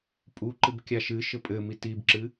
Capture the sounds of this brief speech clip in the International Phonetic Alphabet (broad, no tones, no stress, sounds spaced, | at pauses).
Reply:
pʼ u ǃ ɨ b kʲ a ʃ ɨ ʃ ɘ pʼ ɘ m i t i b ǁ ɨ